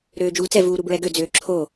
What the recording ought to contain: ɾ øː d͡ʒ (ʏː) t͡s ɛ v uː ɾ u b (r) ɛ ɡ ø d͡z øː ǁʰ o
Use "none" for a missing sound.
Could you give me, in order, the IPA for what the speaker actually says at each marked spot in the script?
uː, ɹ

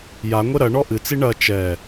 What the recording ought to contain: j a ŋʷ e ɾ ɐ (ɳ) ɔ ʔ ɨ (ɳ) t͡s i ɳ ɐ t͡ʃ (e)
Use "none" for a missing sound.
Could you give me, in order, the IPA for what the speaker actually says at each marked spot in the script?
ɳ, none, ɛ

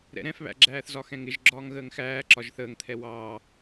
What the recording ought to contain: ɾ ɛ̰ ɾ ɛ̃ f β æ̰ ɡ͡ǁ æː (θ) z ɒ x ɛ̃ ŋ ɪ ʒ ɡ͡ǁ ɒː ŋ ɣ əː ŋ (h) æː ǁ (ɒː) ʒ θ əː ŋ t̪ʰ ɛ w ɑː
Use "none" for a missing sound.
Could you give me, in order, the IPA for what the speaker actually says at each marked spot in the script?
θ, x, ɒ

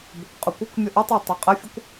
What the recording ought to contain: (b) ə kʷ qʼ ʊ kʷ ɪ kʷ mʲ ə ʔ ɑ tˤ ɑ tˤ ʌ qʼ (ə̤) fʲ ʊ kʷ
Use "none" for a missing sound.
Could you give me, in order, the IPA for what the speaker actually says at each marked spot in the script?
b, ə

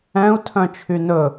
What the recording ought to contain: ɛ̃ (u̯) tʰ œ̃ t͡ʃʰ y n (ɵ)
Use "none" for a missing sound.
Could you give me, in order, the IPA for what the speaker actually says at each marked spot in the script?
u̯, ɵ

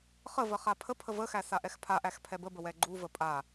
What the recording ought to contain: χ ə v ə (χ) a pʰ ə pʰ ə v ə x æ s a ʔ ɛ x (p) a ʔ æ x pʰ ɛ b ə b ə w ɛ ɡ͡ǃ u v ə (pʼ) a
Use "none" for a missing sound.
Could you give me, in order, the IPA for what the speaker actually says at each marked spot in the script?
χ, pʰ, pʼ

